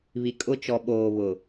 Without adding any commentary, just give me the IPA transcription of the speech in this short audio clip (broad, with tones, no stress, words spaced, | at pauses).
βi˨kʼʊ˦ t͡ʃɔ˨ɓoː˨βʊ˨